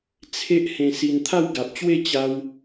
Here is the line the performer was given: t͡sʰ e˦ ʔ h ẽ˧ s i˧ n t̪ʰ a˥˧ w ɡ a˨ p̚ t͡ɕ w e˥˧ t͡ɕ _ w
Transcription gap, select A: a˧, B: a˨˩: A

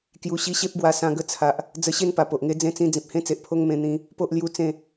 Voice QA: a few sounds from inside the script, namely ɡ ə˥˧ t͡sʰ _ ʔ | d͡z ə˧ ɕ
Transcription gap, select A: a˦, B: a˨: B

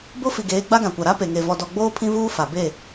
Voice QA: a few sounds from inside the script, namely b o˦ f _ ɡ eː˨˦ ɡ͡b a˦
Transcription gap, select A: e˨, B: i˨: B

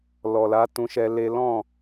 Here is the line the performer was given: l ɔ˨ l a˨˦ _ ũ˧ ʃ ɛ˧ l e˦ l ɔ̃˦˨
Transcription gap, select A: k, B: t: B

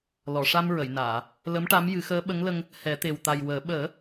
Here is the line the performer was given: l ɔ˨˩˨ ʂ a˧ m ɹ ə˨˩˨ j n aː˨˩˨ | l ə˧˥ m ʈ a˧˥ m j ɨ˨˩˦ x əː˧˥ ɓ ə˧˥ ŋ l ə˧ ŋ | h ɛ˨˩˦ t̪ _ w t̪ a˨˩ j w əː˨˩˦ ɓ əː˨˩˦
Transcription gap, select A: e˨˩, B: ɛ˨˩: A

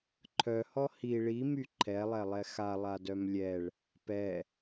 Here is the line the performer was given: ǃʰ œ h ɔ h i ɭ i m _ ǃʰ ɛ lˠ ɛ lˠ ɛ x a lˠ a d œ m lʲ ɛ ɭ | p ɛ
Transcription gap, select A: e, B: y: B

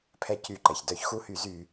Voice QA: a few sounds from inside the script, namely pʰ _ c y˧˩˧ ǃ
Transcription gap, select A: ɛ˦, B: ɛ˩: A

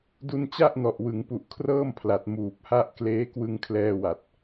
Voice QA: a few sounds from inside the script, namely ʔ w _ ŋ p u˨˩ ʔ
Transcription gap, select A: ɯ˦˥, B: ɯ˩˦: B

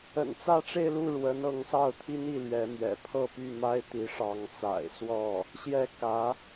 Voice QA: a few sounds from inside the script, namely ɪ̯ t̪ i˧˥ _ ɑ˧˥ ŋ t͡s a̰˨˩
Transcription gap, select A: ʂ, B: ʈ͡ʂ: A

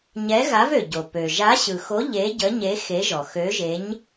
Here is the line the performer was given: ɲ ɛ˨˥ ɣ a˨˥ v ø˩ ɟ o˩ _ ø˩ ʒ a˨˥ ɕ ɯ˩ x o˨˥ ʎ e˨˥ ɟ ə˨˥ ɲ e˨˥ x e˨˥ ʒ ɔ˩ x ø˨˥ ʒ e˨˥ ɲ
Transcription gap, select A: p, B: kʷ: A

